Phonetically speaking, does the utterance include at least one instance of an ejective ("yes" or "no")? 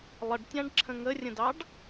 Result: no